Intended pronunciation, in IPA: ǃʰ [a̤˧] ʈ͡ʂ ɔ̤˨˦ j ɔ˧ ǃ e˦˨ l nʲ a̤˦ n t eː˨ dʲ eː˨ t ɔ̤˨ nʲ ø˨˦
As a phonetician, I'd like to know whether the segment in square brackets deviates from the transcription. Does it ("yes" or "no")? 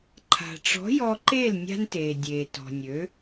yes